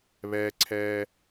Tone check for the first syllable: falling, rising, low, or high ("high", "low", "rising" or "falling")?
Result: low